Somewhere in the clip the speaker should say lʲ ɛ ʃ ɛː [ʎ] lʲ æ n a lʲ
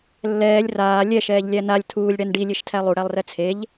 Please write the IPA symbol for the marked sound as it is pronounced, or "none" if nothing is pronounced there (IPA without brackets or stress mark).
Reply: ʎ